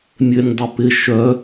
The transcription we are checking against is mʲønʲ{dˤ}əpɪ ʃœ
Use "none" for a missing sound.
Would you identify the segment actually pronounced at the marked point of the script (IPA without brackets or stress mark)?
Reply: dˤ